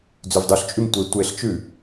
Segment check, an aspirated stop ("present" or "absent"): absent